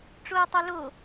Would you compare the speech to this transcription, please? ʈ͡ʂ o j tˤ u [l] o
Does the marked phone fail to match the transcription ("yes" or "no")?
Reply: no